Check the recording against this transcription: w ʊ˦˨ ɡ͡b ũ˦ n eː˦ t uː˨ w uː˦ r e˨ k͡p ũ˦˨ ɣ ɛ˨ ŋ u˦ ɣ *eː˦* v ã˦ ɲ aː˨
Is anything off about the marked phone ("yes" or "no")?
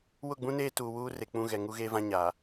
no